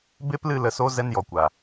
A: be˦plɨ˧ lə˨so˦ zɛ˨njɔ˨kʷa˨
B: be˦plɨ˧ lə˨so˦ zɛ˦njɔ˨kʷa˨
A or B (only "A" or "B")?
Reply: B